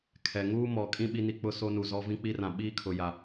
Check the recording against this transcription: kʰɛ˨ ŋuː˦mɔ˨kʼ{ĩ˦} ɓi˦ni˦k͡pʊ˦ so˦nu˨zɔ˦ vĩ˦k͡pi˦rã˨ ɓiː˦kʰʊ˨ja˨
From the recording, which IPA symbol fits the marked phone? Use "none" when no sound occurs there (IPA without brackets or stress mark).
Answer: ĩ˦